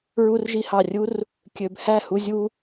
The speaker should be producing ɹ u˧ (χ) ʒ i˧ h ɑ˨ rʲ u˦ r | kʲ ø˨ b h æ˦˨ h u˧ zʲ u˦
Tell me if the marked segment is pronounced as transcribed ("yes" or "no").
no